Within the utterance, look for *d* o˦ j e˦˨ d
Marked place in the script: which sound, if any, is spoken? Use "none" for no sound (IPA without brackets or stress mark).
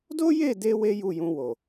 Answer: d